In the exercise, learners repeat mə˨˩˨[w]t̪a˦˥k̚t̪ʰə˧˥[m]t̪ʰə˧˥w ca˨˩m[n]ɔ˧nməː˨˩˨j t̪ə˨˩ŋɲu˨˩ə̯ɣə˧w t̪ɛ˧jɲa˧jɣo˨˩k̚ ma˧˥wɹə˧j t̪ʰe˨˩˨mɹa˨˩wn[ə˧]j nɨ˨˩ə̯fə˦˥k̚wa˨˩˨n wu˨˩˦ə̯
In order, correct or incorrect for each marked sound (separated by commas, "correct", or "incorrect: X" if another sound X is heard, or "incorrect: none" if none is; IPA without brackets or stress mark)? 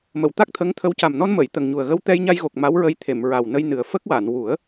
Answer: correct, incorrect: ŋ, correct, correct